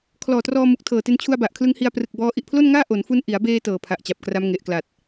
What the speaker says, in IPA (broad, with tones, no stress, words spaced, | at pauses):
kʰlɔː˨˩trɔː˧mu˨˩k̚ tʰɤː˨˩te˧n t͡ɕʰu˧a̯ba˨˩ʔkʰlɯ˦˥ŋ hi˧a̯prɯ˨˩k̚bɔː˦˥ ʔi˨˩ʔpʰlo˥˩nŋaː˥˩ ʔo˩˦nfu˧n ʔi˩˦a̯beː˧ tɤː˨˩ pʰa˨˩ʔt͡ɕa˨˩p̚kra˦˥m ŋe˨˩ʔkla˨˩t̚